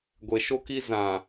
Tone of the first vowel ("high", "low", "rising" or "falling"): low